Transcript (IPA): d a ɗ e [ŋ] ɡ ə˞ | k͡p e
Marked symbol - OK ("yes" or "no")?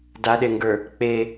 yes